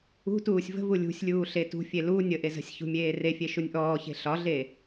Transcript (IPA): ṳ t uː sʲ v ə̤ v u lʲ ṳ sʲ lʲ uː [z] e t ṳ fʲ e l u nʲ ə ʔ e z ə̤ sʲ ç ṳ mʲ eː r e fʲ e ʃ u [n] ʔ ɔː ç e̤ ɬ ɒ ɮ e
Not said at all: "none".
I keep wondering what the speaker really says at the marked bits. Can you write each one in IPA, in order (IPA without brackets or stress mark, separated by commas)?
ɬ, nʲ